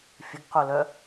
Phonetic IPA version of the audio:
fʲ ə ɡ q o l œ

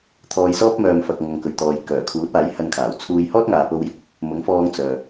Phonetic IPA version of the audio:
t̪ʰ ɔː˧ j s ɔː˥ p̚ m œː˨ m f ɐ˨ k̚ ŋ ɐ˨ ŋ k ɵ˨ ɥ t̪ ɔː˨ j k œː˨˩ kʰ uː˨˥ t̚ aː˨˥ j h ɐ˧ n kʰ aː˨˩ w t͡sʰ uː˧ j h ɔː˥ t̚ ŋ aː˨ p o˧ w j ɪ˨ k̚ | m ʊ˨˥ ŋ f ɔː˧ ŋ t͡s œː˨

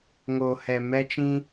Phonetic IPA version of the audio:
ŋ o˨ h ɛ˨ m ɛ˧ t͡ʃ ĩ˧

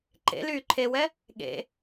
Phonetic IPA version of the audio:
ǃ ḛ l yː ǃʰ e w ɛ | ɠ ḛ

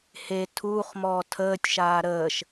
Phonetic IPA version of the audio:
h e tʰ uː χ m ɔː tʰ əː tʲ ʃ aː ɾ əː ʃ

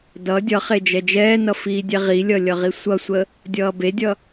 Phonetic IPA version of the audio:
d ʌ dʲ ʌ χ e d͡ʒ ɛ d͡ʒ ɛː n ʌ f iː dʲ ɛ ʁ i lʲ ʌ lʲ ʌ ʁ i sʷ ʌ sʷ ə | dʲ ʌː b e dʲ ʌ

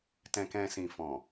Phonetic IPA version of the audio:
t ɛ̃˨ k ɛ̃˨ s ĩ˨ f ɔ̃˨

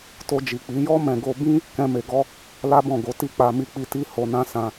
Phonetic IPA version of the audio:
t o˧ d͡ʒ i˨ k͡p i˨˦ j ɔ˦ m ɛ̃˧ ɡ o˧ b ĩ˦ | k ɛ̃˧ m e˨ ɡ ɔ˧ | l a˦ b ɔ̃˦˨ ɡ o˨˦ t i˦˨ k͡p a˧ m i˧ k͡p i˧ t i˦ h o˧ n ã˦ s ã˧

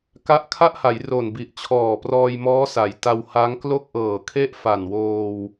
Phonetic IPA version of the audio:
k a˦˥ ʔ kʰ a˥˩ ʔ h a˩˦ j r o˨˩ n b i˨˩ ʔ t͡ɕʰ ɔː˨˩ p r ɔː˧ j m ɔː˦˥ s a˩˦ j t a˧ w h a˦˥ ŋ k l o˥˩ k̚ ʔ ɤː˨˩ kʰ e˥˩ ʔ f a˨˩ n w oː˧ w

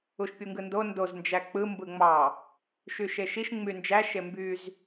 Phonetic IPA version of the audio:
u ʃ pʲ u ŋ ɡ ɯ n d o n d o z n d͡ʒ æ k͡p ɯ m b ɯ ŋ͡m ɑ | ʃ y ʃ e ʃ i ʃ ŋ͡m y n d͡ʒ æ ʃ e m b y z

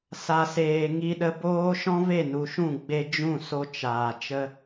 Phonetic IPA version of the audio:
s a˨ s eː˨ ŋ i˧ ɗ ə˧ b oː˧ ʃ ɔ̃˦ v e˦˨ n u˨ ʃ ũ˦˨ ɡ͡b e˧ d͡ʒ ũ˦˨ s o˧ t͡ʃ aː˨ t͡ʃ ə˧

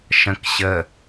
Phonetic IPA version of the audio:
ʃ ə̃ k ɕ ə

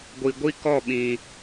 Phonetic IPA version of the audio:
ɡʷ i˨ ɡʷ i˦ k ɔ˦˨ ɓ ĩ˨

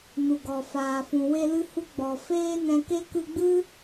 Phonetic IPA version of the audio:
n u˨ ɡ ɔ˨ f aː˨ f ũ˨ w e˧ l ɨ˧ h u˧ ɡ͡b ɔ˨ f eː˦ n ɛ̃˧ k e˦ k ɨ˧ ɡ͡b ɨ˦

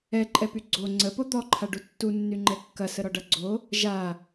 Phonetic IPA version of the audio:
ɛ ǃʼ ɛ p y ɡ͡ǀ o ŋ͡ǀ ə p o d̪ ɔ ǃʰ a ɖ u tː u nː y ŋ͡ǃ ɛ kː ɐ s ə ɾ ɔ ɖ ʌ ɡ͡ǀ o | ʒ a

